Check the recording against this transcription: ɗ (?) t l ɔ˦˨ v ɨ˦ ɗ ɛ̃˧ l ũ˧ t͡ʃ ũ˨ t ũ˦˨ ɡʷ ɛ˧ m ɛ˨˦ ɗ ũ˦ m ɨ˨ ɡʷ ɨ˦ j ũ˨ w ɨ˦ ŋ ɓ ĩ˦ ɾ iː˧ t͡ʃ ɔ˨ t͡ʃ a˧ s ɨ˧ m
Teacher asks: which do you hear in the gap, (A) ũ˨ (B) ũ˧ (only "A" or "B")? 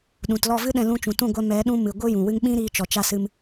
A